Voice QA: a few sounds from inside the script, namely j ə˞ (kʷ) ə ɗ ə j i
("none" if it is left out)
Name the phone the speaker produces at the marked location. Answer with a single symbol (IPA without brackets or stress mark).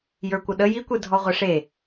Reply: kʷ